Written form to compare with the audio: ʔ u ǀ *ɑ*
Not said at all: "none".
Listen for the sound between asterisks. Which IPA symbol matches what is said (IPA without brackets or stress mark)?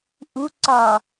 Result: ɒ